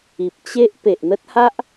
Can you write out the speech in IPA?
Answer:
i˨p̚ t͡ɕe˦ʔ pe˨ʔn̪ə˦t̚ha˦ʔ

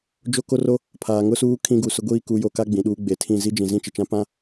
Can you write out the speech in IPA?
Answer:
d͡ʒo˦ ko˦ro˦ | pʰaː˨ŋʊ˦suː˦ kʰĩ˦ɡu˨sʊ˦ɡʷiː˦ ku˨˦jo˨ka˦ ɡ͡bĩ˨ɗuː˦ ɡ͡be˨tʰĩ˦˨ zi˦ d͡ʒĩ˨zĩ˦t͡ʃɪ˨t͡ʃã˦ pã˦

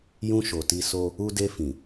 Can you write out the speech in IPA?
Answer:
jũ˧ ʃo˨ti˧so˦ | u˧de˧fĩ˨

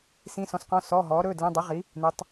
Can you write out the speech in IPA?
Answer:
sĩ˧˥˧sɔ̃˨˥sqɔ̃˧˥˧ sɔː˧˥˧ɦɔː˨˥ɾɵː˧˥˧dlĩ˧˥˧ dˤi˨˥ʁi˨˥ | nu˨˥tˤ

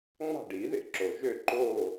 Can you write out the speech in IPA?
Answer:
ŋ͡mɑ̤˥˨ɖi˨˩˦ðḛ˥˨ǁo˩ ʒø˥˨ǃoː˥˨

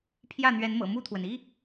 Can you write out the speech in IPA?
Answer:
pʰjä˥˨n̪ɥɛ˨˦nmɤ̰˨˩ mu˥˨t̪ʰwə˩n i˦

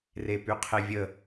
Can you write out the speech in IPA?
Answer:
repyqʰevʲə

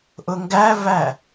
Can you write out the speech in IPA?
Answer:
ʔʊŋɡævæ

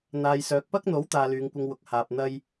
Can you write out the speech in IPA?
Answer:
n̪aː˨jsœː˨k̚pɐ˥k̚n̪o˨˥w t̪aː˧lyː˨˧ŋkʷɪ˧ŋwʊ˨k̚ haː˨p̚ n̪ɐ˥j

